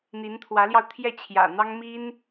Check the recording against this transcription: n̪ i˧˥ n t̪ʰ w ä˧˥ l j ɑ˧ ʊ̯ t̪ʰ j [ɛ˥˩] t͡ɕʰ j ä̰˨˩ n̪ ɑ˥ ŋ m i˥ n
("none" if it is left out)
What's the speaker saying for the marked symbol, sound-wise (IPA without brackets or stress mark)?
ɛ˥˩